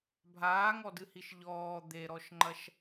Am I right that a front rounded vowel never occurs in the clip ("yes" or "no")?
yes